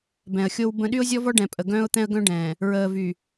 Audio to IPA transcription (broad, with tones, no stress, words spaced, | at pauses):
bɛ̃˨ə̯xʲo˦w bə̃˦ ɗy˦ʊ̯zʲɔ˦vɔ˦ ɖɛ̃˨pʼə˨ ɡœ̃ː˦ʊ̯t̪ɛ̃˦ə̯ ɡœ̃˦ɖɛ̃ː˨ | ɹəː˨vy˨